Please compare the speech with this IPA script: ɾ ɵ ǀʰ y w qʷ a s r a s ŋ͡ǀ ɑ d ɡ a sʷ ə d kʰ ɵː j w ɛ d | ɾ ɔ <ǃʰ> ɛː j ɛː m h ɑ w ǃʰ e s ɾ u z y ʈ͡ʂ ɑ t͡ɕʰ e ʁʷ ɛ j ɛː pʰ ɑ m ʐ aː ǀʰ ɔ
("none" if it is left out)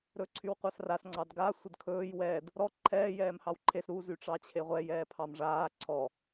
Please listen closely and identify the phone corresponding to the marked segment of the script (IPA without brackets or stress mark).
ǃʰ